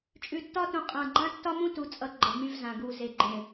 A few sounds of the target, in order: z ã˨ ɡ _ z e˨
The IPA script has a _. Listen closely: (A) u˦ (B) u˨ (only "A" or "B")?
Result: B